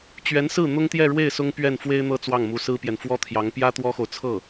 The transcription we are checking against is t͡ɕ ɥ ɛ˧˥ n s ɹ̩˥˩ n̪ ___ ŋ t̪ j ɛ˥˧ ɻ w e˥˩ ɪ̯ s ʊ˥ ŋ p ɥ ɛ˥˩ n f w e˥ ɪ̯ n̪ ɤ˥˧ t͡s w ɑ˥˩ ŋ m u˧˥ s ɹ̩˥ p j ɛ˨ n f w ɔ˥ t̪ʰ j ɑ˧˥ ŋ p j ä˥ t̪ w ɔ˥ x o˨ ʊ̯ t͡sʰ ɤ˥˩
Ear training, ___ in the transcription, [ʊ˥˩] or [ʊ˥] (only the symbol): ʊ˥